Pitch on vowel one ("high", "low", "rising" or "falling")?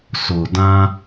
low